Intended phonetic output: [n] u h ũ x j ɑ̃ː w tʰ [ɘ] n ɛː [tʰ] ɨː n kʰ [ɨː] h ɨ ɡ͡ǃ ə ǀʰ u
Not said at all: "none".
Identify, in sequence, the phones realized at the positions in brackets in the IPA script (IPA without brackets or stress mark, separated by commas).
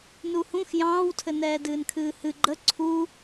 n, ɘ, d, ɨː